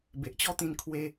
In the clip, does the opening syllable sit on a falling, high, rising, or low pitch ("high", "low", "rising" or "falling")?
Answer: low